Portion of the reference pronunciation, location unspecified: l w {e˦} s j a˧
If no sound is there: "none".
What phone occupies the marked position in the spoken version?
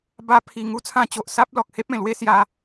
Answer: e˦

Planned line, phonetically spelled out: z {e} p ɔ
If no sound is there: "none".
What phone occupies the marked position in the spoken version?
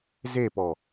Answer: e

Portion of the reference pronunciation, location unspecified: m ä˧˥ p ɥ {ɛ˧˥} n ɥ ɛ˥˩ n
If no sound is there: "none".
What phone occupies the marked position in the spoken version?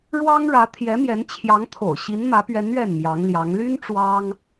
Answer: ɛ˧˥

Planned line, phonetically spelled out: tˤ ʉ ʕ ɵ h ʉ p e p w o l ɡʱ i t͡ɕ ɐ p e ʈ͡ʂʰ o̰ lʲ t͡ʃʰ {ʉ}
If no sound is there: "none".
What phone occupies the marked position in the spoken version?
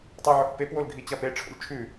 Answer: ʉ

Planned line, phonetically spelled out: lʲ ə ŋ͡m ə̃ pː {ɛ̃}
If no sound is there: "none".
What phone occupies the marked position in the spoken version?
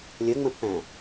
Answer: æ̃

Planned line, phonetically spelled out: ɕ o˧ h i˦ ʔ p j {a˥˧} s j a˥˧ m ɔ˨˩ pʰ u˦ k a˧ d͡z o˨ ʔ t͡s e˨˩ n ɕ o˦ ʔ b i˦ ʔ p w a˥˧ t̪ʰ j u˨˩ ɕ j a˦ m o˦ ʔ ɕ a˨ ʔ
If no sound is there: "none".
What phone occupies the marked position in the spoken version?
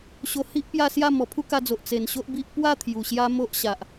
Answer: a˥˧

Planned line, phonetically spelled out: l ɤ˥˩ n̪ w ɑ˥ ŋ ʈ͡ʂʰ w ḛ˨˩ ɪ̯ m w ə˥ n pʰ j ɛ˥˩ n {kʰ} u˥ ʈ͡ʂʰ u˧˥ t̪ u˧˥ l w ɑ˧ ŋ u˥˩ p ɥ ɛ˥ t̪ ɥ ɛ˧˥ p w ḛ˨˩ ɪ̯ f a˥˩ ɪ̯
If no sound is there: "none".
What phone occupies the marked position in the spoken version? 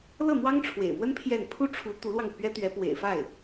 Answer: pʰ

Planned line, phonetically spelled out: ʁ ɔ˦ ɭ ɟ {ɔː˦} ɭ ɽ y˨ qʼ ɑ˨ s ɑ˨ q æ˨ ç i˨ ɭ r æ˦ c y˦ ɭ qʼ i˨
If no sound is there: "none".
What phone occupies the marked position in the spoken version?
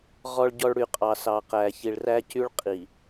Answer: ɔ˦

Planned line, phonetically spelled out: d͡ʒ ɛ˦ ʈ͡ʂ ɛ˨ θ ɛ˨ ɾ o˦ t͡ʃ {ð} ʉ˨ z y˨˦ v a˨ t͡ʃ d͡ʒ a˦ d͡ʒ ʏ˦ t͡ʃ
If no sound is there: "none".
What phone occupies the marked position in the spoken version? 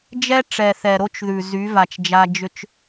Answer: ð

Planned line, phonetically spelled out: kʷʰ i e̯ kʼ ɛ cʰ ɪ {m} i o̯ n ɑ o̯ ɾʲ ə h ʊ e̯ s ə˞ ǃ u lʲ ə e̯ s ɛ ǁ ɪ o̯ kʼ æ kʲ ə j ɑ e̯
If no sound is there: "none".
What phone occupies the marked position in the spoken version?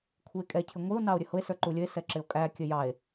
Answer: ŋʷ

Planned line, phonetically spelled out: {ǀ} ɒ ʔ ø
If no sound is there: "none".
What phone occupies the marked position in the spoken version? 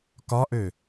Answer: k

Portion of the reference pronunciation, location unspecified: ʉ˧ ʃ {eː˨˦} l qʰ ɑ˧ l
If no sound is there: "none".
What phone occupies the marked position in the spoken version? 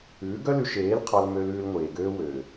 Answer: eː˨˦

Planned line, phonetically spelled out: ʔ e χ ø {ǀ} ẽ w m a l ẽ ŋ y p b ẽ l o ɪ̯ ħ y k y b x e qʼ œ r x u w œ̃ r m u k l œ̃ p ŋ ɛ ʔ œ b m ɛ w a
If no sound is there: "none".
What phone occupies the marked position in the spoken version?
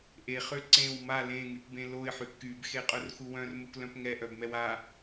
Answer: ǀ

